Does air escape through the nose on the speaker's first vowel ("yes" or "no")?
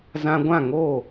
yes